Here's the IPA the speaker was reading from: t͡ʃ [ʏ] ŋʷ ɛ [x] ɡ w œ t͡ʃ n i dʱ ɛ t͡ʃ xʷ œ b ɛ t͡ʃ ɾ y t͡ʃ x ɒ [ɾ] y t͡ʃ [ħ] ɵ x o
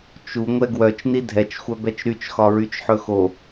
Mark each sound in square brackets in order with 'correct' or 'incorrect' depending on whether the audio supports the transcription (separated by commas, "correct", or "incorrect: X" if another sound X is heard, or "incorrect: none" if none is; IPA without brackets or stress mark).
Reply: incorrect: u, incorrect: none, incorrect: ɹ, correct